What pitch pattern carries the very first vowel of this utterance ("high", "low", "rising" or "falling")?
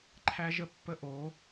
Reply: high